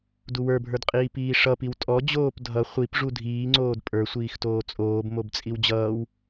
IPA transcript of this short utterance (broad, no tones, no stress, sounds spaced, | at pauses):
d u w ə˞ bʱ ə˞ d qʼ iː p iː ʂ ʌ p i w tʼ ɔ d͡ʑ oː p dʱ ʌ χʷ i p ʐ u dʱ iː ŋ͡ǀ oː d pʼ ə˞ sʷ iː x t oː t͡sʼ oː b m o b t͡sʼ i w d͡ʑ ʌː w